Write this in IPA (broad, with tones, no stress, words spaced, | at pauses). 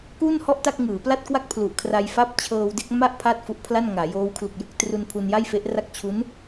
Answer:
kuː˥˩nhɔ˥˩ʔ ta˥˩k̚ŋɯː˩˦pla˥˩t̚kwa˥˩k̚ pʰlu˨˩ʔkʰra˧jfa˥˩p̚ t͡ɕʰɤː˧wde˥˩k̚ma˥˩ʔ pʰaː˥˩t̚fu˦˥ʔpʰla˥˩nŋaː˩˦ joː˦˥wkʰlu˨˩k̚jɯ˥˩k̚ tru˧npʰu˧nja˥˩jfe˦˥ʔ ra˥˩k̚ t͡ɕʰu˦˥n